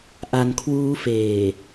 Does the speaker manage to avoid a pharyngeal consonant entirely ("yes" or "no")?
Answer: yes